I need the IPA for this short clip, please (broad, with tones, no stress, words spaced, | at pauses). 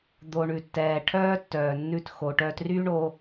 d̪o˧ɳʉ˨tːɛː˨ ʈʰœː˦tːœː˨nːʉ˧t xo˨ ʈœː˧tryː˦ɳo˧